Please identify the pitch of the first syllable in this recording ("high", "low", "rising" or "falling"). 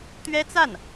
high